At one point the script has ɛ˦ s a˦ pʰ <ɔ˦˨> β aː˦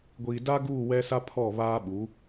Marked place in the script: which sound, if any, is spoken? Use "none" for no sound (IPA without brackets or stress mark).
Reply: ɔ˦˨